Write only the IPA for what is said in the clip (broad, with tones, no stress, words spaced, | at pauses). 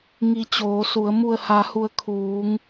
ŋi˧ t͡ɕoː˩˧su˩˧ə̯ mu˧˩ə̯ha˩˧hu˩˧ə̯ kʰuː˩˧ŋ